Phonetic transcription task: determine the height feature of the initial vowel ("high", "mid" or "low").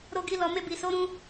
mid